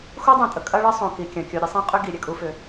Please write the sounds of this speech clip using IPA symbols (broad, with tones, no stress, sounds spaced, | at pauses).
x u˦ dˤ õ˨ tʼ ə˨ kʼ ɐ˦ ɭ ə˦ sˤ õ˨ k i˨ kʲ ɐ̃˨ kʲ o˨ ɾʲ ɐ˦ sˤ ẽ˦ qʼ ʏ˦ ɡ i˨ ɾʲ ɛ˨ kʼ u˨ f ʏ˨